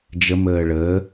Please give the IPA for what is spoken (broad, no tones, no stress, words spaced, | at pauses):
d͡ʒə məːɭəː